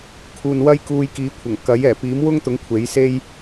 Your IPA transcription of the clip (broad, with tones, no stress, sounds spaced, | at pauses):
kʰ uː˨ n w ɐ˥ j k uː˧ j k iː˨˥ kʷʰ ɐ˨˩ ŋ k ɐ˨˥ j ɛː˨˩ p iː˨˥ m w ʊ˥ ŋ t̪ ʊ˨˥ ŋ kʷʰ e˨˥ j s e˥ j